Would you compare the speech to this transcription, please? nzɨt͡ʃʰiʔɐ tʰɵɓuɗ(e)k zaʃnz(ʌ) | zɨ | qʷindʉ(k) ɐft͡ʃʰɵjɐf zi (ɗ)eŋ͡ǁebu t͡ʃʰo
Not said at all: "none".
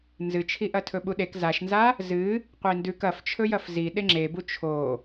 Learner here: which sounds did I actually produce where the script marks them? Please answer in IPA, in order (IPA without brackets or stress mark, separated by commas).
e, a, k, ɗ